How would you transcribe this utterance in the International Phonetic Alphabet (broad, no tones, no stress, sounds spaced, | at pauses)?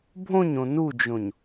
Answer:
bʱ õ ɲ õ n u d͡ʒ õ ɲ